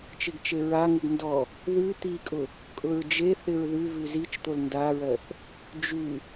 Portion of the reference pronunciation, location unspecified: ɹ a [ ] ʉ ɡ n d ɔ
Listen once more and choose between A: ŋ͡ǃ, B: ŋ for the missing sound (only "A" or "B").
B